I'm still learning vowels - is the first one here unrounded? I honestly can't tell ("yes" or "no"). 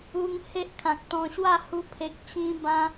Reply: no